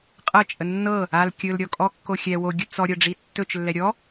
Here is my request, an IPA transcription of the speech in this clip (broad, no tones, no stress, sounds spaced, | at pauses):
qʼ ɤ t͡ʃʼ ə nː ɤ | a l kʲ ɵ l ɾʲ ɔ kʼ ɔ kː o xʲ ɛ w o ɡʲ ɵ t͡s ɔ ɾʲ ɤ ɖ͡ʐ i tː ɵ t͡ʃ lː ɛ ɾʲ ɔ